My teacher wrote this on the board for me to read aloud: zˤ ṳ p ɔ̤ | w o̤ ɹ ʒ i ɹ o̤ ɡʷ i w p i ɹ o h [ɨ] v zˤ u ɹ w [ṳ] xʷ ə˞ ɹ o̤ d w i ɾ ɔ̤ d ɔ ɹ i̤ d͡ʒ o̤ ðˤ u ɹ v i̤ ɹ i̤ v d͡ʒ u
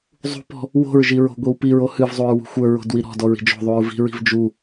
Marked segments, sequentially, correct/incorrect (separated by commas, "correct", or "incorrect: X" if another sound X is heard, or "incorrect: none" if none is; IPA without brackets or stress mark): correct, correct